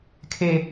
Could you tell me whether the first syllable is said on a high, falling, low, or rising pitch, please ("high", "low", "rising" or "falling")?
high